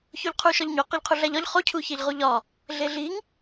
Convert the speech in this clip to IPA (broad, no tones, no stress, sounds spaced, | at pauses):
ç o ʎ qʰ u ʃ ɒ ʎ ɲ o q ɒ ʎ qʰ u ɮ æ ʎ ɒ ʎ χ o cʰ u ç e ʎ ʁ u ʎ ɒ | ɮ e ɮ i ŋ